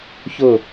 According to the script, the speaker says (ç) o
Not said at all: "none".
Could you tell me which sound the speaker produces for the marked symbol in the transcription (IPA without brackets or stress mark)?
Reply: ç